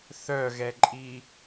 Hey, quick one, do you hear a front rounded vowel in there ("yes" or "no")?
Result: yes